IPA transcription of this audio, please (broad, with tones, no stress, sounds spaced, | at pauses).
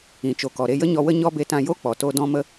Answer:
ĩ˨ t͡ʃ o˨ k ɔ˨ ɾ e˧ j ə˦ ɲ ɔ˧ w ə˦ ɲ ɔ˦ b e˧ t ã˧ j o˦ k͡p ɔ˨ t o˧ d ɔ̃˧ m ə˧